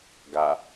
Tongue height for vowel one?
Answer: low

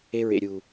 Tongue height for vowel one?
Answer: mid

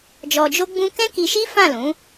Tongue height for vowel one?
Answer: mid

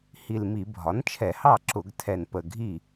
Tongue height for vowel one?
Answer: high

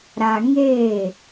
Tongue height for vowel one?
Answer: low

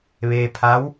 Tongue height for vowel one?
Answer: mid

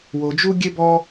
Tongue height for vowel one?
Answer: mid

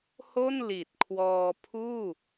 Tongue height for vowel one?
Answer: mid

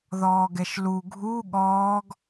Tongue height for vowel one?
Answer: mid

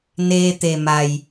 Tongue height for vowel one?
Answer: mid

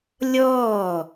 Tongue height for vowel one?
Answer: mid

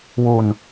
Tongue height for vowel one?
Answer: high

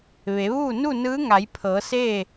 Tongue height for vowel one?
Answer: mid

